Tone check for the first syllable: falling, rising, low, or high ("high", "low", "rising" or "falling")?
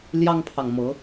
high